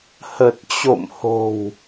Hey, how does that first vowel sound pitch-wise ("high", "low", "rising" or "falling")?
low